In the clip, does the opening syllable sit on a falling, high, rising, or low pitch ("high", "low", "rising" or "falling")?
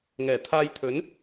low